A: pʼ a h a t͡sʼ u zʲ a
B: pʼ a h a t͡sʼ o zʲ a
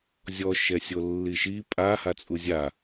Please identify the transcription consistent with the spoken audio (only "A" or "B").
A